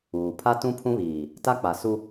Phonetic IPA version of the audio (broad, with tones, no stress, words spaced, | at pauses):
uː˨ pʰa˦tũ˦pʰũ˦βiː˨ | ta˦k͡pa˨su˦